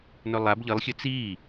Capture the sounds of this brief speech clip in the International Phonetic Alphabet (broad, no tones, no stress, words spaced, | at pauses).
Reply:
nɵlˠab ʎɨlˠxʲɵ t͡siː